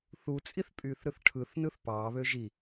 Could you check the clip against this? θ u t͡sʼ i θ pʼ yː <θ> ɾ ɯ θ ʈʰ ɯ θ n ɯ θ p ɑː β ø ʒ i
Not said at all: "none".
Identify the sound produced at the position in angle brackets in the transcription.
θ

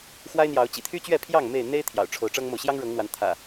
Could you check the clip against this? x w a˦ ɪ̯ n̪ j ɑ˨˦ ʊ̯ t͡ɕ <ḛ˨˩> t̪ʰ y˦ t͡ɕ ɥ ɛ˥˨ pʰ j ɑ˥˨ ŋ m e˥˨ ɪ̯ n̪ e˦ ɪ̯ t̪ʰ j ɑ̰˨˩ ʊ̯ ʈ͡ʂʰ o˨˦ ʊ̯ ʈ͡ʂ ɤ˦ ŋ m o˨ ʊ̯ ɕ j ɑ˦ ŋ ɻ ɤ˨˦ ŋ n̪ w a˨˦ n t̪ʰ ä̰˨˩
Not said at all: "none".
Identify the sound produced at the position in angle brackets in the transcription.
ḭ˨˩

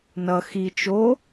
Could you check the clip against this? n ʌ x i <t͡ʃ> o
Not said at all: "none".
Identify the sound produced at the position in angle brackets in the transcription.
t͡ʃ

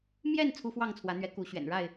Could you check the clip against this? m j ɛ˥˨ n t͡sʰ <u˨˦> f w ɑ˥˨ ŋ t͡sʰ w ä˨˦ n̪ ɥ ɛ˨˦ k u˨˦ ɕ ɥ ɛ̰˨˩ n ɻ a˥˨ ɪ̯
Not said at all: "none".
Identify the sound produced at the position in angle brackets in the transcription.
u˦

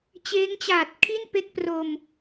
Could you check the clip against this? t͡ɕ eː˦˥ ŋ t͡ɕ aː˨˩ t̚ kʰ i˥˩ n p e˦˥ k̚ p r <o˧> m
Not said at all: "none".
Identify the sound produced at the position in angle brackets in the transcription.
o˧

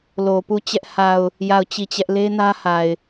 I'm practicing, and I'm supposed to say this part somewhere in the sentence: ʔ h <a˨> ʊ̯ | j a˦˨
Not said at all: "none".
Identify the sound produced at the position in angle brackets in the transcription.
a˨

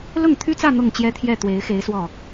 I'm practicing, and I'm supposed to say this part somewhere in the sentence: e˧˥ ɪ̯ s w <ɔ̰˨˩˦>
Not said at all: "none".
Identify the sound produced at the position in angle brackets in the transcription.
ɔ˥˩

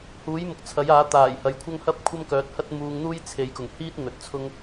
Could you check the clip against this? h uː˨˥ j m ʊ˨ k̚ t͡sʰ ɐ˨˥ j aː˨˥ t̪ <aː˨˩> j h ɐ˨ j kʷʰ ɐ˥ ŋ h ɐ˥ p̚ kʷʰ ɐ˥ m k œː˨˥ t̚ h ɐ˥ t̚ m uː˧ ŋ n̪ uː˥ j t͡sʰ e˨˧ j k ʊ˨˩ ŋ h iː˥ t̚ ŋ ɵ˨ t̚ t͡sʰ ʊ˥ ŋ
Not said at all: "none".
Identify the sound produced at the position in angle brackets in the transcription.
aː˨˩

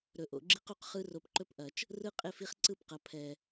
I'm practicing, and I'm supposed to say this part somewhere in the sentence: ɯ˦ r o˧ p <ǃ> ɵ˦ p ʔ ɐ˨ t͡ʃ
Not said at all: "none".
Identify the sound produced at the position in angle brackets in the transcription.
ǃ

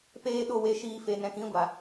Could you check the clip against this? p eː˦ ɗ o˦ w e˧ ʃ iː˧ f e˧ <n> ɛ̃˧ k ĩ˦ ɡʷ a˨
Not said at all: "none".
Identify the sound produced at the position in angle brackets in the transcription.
n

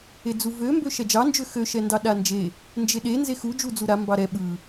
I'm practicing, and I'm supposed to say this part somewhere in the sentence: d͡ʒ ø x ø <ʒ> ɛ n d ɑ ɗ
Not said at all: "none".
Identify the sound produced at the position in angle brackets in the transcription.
ʃ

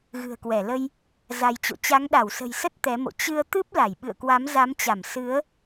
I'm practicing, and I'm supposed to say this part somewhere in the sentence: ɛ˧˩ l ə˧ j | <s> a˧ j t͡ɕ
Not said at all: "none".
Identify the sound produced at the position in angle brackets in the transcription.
z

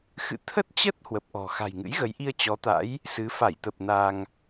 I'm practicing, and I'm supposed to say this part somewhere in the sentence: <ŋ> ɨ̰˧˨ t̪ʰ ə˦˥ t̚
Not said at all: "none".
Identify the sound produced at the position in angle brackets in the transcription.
x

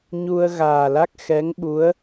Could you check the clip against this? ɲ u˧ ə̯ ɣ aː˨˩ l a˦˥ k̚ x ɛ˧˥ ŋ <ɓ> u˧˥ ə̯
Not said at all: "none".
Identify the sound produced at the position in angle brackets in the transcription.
ɓ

